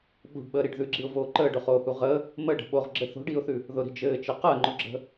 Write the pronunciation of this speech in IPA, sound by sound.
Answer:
ɓ ṳ ɖ ɓ əː ɾ i ɖ ð ʉ ɡ͡ǁ i ʊ̯ v oː ǃ əː ɖ ʊ χ oː h u ʁ ə | m ə ɖ ə̤ ɓ o ʁ ɡ͡ǁ ɘ θ o̤ ɖ iː ʊ̯ θ ʉ | ð ʊ ɾ i̤ d͡ʒ ɘː t͡ʃ ɘ q əː ŋ͡ǃ ʊ ɡ͡ǁ ə̤

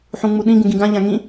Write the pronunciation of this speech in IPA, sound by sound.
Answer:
ħ ũ ŋ͡m u ɗ ĩ ɡ ũ ɡ ĩ ɡ ã ʎ ã ŋ ĩ

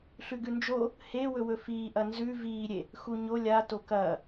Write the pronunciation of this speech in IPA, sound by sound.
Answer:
ɬ ʉ ɡ ʉ n d͡ʒ o | h e w ɵ w ɵ f iː ʔ ɐ n z ʉ v iː ɾʲ e | x u ɲ o lʲ a t o k ɐː

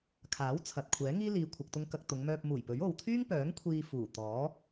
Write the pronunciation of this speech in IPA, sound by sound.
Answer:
kʰ aː˨˥ w t͡sʰ ɐ˨ t̚ kʷʰ ɛː˨˥ ŋ iː˥ l iː˨ kʷʰ ɐ˨ k̚ t̪ ʊ˧ ŋ k ɐ˧ k̚ t̪ ʊ˨˧ ŋ m œː˧ p̚ m uː˨˩ j p ɵ˨˥ ɥ o˨ w t̪ʰ yː˥ ŋ p œː˨˥ ŋ kʷʰ iː˧ f uː˨˩ t̪ ɔː˨˥

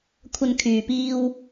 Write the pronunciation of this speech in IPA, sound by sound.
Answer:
kʷʰ ɐ˧ n kʰ yː˨ p iː˧ w

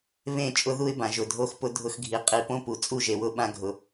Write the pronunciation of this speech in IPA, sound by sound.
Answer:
β ẽ˦˨ t͡ʃʼ ʊ˦ ð u˦ ɪ̯ b ã˨ ʒ ʊ˨ dʱ o˧ x p ʊ˧ dʱ ʊ˧ x ɡʱ i˨ qʼ i˨ p õ˦ p u˨ t͡sʼ u˦˨ ʒ e˨ w ʊ˧ ɓ ã˧ ɡʱ ʊ˨

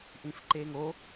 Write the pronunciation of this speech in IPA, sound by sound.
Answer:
ʔ ĩ f ǃ e ŋ o

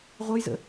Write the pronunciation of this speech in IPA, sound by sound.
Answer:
ʁʷ ə j z ə̰

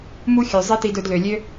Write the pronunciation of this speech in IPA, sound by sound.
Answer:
m u˦ xʲ ø˨ zˤ i˦ t i˧ d ɵ˧ d l ø˨ lʲ ø˦

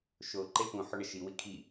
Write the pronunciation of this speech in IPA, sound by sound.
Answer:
ʃ o ǃ e p ũ ħ ɵ ɳ ɐ ʃ i w i kʰ i

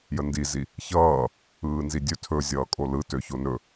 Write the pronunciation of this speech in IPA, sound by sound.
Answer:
j ə n d i z i | ç ʌː | ɯː n z i dʲ ɵ tʰ ɵ zʲ ʌː kʼ o l ɯ t ø ç o n ɵ

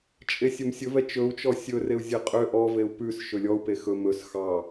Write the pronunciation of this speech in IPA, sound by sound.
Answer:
t͡ʃʼ e sʲ ɵ m sʲ ɵ v ɛ t͡ʃ ɵ u̯ t͡ʃ ɔ sʲ ɵ r e u̯ zʲ e qʼ ø ʔ ɔ v e u̯ p ʉ s ʃ ɵ lʲ ɔ u̯ p e x ɵ m ɵ s x ɑ

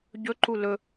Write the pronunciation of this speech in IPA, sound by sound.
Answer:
ɟ ɵ ǃ u l ɵ

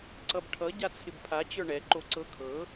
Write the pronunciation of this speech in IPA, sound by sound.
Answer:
ǀ ʌ b ʈʰ ʌ ɟ a t͡sʰ ɪ b pʰ a t͡ɕ ə˞ ɳ ɛ ǃ o ǀ ɤ kʰ ɤ

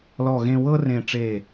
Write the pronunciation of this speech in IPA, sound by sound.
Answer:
l ɔ˧˩ ɣ ẽ˧ w ɤ˥ r ẽ˧˩ ʈ͡ʂ e˧˩

